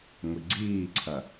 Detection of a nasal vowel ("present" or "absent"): absent